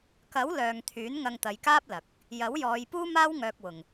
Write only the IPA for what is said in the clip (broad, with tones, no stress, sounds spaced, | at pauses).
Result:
k ɐ˨˥ w l œː˨ ŋ t̪ʰ yː˨˥ n ŋ ɐ˧ ŋ t̪ ɐ˨˧ j k aː˥ p̚ l ɐ˨ k̚ | j ɐ˨˥ w j ɔː˨˧ j p uː˥ m aː˥ w ŋ œː˧ k̚ w ʊ˨ ŋ